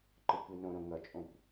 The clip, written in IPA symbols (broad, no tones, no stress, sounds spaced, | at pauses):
ǃ ɯ kʷ i n õ ɾ õ ŋ ʌ t͡ʃʼ õ kʷ